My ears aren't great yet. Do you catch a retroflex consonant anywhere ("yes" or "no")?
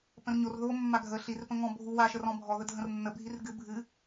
no